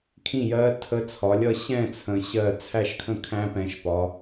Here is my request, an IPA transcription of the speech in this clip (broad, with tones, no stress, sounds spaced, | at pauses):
kʰ ĩ˥˨ j ɜ˦˥ tʰ ə˦˥ t͡sʰ ɒ˨˦ lʲ ʌ˥˨ ɕ ɛ̃˥˨ t͡sʰ ə̃˨˦ ɕ ɜ˥˨ t͡sʰ æ˥˨ ʃ kʰ ə̃˥˨ kʰ æ̃˦˥ p ɛ̃˨˦ ʃ p ɒ˨˦